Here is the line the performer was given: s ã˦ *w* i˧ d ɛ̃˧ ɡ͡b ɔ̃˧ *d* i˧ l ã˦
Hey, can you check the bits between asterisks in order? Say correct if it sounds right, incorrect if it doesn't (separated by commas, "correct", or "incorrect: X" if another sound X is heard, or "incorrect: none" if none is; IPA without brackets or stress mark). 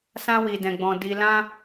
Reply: correct, correct